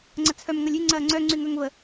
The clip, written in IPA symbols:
ŋ͡ǀ ɐ t͡sʰ œ m ŋ ɐ lʲ y ŋ͡ǀ ɐː ŋ͡ǀ œ ŋ͡ǀ y ŋ œ ŋ v ə

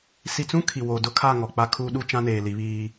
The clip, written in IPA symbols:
s i˨ t͡s ũ˦ kʰ i˨ w o˨ d ʊ˦ kʰ a˦˨ ŋ ɔ˨ k͡p a˦ kʰ uː˦ ɗ u˦ t͡ʃ ã˦ n eː˨ l i˨˦ β iː˦

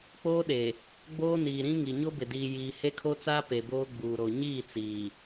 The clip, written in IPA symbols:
k͡p oː˦ ɗ e˨ | ɡ͡b oː˦ n iː˨ ɾ ĩ˦ ŋ i˨ ɲ o˦ b ɪ˨ d iː˨ j iː˨ h e˦ kʰ o˦ t͡s aː˦ p e˨ b oː˦ ɡ͡b uː˨ ɾ o˨ ɲ iː˦˨ t͡s iː˨

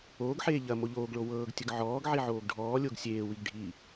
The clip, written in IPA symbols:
oː ɡ ħ eː ʎ ɐ m o ʎ oː ɡ ɭ o w ɤː ɡ tʲ ə ɡ ʕ ɔː ɡ ʕ i ʕ oː ɡ ɖʱ ɔː lʲ o ɡ sʲ eː w i ɡ ɖʱ i

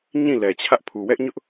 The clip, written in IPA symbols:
ɲ ĩ˦˨ l ɛ˨ t͡ɕʰ ä˦ ʔ pʰ u˨ w ɛ˦ ʔ ɲ ʊ˦ ʔ

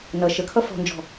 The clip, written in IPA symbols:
n ʌ ʃ ə kʰ ʌ f ɔ̤ n d͡ʒ ɔ̤

